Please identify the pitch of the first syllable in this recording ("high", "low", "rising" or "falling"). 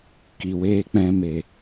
low